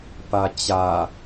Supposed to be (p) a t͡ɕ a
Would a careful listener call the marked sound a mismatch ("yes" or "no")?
no